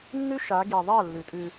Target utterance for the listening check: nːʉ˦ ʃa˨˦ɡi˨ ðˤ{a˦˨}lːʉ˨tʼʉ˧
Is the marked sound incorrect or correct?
correct